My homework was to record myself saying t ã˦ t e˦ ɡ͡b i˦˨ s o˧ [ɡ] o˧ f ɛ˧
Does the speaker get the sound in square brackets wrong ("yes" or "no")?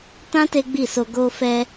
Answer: no